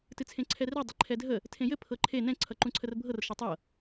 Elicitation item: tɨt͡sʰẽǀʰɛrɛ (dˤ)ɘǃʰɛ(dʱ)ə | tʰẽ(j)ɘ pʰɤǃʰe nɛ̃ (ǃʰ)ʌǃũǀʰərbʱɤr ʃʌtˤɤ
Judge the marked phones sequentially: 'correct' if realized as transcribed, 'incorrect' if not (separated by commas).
correct, correct, correct, incorrect